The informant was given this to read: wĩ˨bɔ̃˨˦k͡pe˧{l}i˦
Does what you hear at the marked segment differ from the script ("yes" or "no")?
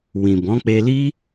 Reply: no